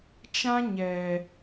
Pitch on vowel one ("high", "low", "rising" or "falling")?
high